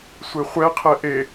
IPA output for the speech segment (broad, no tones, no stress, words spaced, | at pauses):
sʷeχʷɛ qʰɛʔe